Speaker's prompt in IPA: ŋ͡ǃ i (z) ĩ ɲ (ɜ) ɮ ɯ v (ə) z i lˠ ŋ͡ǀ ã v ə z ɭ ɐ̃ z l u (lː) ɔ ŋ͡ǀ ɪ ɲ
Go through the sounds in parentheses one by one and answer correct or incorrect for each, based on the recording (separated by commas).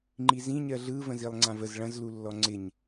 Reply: correct, correct, incorrect, correct